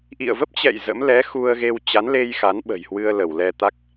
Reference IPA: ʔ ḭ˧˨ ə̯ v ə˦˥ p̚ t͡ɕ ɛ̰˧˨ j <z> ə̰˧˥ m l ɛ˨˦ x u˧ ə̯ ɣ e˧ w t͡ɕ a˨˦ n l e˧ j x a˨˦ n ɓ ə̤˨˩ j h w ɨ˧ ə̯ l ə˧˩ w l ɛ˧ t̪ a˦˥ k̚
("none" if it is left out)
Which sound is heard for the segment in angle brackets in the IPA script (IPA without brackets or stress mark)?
z